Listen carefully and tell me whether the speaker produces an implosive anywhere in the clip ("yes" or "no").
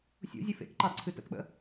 yes